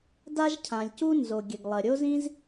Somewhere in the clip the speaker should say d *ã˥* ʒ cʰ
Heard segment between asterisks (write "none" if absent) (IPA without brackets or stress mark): a˥